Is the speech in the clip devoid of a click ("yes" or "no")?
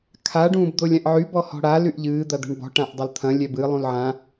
yes